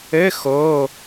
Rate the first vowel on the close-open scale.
mid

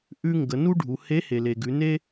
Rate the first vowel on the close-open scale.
close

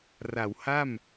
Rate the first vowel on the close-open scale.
open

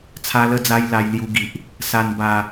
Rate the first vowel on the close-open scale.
open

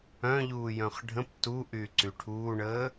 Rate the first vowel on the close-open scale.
mid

